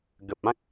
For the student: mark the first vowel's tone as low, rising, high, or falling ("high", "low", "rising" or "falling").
low